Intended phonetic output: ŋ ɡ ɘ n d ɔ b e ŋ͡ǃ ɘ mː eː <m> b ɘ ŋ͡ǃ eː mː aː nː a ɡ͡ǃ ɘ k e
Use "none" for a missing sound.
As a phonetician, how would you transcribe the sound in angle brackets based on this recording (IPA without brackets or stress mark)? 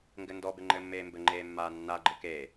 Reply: m